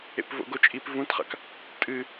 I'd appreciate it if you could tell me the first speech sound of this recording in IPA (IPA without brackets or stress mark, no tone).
ḛ